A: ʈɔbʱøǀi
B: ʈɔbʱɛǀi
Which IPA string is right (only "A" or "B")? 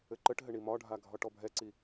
B